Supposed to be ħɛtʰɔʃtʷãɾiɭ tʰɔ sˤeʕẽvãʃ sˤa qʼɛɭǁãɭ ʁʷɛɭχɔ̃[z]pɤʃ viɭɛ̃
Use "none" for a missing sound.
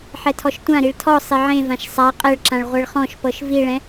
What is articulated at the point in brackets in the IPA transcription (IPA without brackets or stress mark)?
ʃ